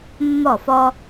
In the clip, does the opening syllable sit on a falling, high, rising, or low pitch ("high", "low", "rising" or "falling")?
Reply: falling